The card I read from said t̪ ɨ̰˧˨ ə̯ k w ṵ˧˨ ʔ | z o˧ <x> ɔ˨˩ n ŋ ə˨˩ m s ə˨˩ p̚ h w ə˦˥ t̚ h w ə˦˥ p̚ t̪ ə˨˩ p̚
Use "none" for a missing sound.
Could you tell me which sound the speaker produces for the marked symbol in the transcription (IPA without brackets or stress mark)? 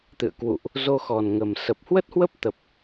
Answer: x